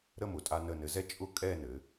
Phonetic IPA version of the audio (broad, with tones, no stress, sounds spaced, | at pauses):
ɾ ə˥˧ m ʊ˩˧ tʼ a˧ n ə˧˩ n ɘ˩˧ z ɛ˥ t͡ʃʼ ʊ˥ kʼ ɛ˥˧ n ɘ˩˧